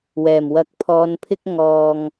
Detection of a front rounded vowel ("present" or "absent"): absent